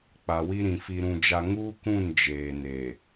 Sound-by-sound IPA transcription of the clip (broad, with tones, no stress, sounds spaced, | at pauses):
k͡p a˨ w i˦ ɾ ĩ˨ f i˦ ɾ ũ˦ d͡ʒ a˦ ŋ uː˦ k ũ˦˨ n d͡ʒ eː˨ n eː˨